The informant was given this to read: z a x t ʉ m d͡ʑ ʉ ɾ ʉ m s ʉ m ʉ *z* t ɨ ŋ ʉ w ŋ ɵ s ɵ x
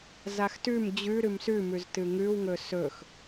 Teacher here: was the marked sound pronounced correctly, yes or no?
yes